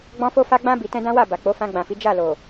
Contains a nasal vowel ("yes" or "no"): yes